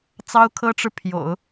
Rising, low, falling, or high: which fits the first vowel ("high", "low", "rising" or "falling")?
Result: high